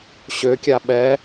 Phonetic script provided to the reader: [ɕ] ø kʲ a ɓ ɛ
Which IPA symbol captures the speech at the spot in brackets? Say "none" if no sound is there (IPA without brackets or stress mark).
ɕ